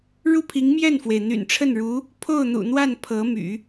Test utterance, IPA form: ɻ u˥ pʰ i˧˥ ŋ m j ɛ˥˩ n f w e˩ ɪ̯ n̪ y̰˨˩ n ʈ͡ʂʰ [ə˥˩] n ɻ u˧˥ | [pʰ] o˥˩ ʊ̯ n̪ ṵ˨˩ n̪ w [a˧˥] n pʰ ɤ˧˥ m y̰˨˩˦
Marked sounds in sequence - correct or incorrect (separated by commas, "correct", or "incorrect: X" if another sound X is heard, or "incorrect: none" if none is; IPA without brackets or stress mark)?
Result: correct, correct, incorrect: a˥˩